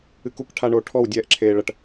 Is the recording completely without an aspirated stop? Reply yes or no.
no